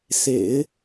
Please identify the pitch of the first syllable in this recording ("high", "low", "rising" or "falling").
low